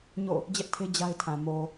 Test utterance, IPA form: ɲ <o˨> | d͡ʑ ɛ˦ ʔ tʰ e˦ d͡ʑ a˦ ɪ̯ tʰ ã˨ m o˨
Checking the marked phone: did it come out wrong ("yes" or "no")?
yes